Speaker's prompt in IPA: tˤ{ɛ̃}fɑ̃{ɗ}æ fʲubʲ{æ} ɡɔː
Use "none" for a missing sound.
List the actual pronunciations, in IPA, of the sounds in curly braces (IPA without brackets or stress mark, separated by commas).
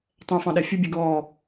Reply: ɛ̃, ɗ, ɛ